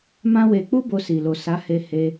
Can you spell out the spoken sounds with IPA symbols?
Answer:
m ã˦ w e˧ k͡p u˦ b o˧ s i˨ l o˨ s a˨˦ h e˧ h e˧

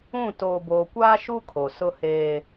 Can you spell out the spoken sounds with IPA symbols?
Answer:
ũ˦˨ t oː˨ b oː˨ kʷ aː˦ ʃ u˦ kʰ o˨ s ʊ˦ h eː˦

